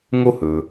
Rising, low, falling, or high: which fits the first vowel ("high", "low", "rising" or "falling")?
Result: high